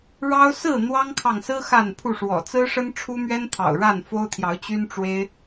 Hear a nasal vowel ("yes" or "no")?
no